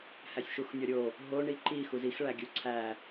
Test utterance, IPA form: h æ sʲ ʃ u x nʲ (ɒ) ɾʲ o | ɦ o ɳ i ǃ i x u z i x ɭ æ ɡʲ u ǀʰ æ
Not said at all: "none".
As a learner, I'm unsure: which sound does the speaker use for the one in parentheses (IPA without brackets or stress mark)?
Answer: ɒ